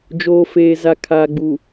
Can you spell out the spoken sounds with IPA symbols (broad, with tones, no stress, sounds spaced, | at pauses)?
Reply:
d͡ʒ oː˨ f eː˨ z a˨ kʰ aː˨ ɡ͡b u˨